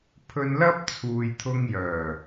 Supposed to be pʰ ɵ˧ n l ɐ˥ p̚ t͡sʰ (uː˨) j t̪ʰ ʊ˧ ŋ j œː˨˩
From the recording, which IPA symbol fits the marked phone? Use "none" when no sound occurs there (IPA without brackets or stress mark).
uː˨